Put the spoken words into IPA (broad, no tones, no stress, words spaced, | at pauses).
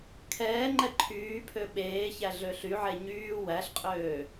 kʰɛːŋ͡ǃɛ ǃʰyːpʰø ɓeːçæ ɮøɬyʕe ɲyː wæɬqʼøː